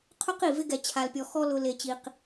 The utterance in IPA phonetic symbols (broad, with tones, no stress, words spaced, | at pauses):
qʰʊ˦q i˨ vɪ˦ɡɛ˨ t͡ɕʰa˨lpʲɔ˨ xɔ˦ lʊ˨ le˨t͡ɕi˨q